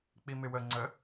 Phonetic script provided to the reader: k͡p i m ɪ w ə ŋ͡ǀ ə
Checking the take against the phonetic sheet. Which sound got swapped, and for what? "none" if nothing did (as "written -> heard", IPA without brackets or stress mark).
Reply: none